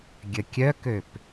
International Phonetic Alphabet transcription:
ɡʲəkʲœkøp

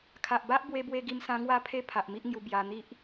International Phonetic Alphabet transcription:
kʰa˨ʔba˦ʔ bwe˧bwe˧ɡi˧msã˧ ŋwa˦pʰe˦ pʰa˨ʔ mi˦ʔŋju˧ bja˧ n̪i˦ʔ

